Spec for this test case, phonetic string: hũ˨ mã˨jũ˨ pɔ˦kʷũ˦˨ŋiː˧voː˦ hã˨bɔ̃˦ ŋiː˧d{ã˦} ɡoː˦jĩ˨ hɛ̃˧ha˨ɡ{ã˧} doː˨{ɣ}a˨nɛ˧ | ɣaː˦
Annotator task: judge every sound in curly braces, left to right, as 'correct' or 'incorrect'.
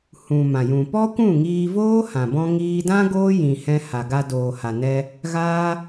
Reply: correct, incorrect: a˧, incorrect: h

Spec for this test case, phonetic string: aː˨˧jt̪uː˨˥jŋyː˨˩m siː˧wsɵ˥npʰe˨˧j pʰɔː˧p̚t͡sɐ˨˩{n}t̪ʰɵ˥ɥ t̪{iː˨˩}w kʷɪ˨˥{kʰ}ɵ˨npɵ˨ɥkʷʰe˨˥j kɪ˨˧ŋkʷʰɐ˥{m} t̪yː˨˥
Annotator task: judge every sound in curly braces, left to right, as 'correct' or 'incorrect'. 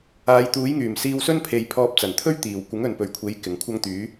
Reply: correct, correct, incorrect: ŋ, incorrect: ŋ

